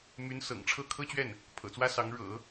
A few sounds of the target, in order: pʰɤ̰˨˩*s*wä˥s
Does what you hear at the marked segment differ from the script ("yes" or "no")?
yes